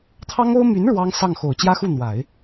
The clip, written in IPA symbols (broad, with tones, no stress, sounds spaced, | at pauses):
t̪ʰ ɑ˥ ŋ o˥ ʊ̯ m y˧˥ n ɻ w ɑ˥ ŋ s ɑ˥˩ ŋ x o˨˩ ʊ̯ t͡ɕ j ä˥ x u˥˩ n̪ w a˨˩˦ ɪ̯